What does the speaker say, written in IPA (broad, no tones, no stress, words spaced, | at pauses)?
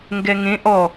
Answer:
ŋɡɛŋẽ ʔɔ